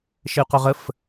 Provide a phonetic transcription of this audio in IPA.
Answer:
ʃəy̯qœʁəf

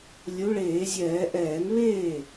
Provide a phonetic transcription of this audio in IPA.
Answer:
lʲu˨˦ɭeː˧˩˧zʲɛː˧˩˧ ʔɛː˧˩˧nβeː˥˩

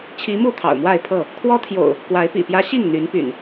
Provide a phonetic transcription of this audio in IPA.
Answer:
t͡ɕʰi˨˦mu˥˨ t̪ʰɑ̰˨˩ʊ̯mwa˥˨ɪ̯pʰɤ˥˨ | kʰwɔ˦t̪ʰjo̰˨˩ʊ̯ | kwa˨˦ɪ̯pḭ˨˩pjä˦ ɕi˥˨ŋ n̪y˨˦npy̰˨˩n

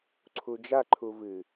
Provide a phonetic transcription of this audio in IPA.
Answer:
ǀʰud͡ʒaǃʰu vɨ

